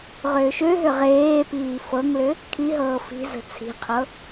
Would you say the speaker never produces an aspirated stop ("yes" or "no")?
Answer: no